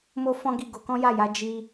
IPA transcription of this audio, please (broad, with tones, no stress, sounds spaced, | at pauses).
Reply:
m o˦ f ɔ̃˦ ɡ i˦˨ ɡ o˧ k ɔ̃˦ j a˦˨ j a˨˦ d͡ʒ i˧